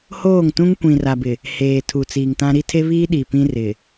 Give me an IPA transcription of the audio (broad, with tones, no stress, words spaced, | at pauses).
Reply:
hoː˦˨ŋtũ˦ŋ kʷĩ˨ra˨bɪ˨ | heː˨ tʰu˨t͡siː˨ŋtã˦ ɾi˦tʰe˦βiː˦ ɗi˨pĩ˦ rɪ˨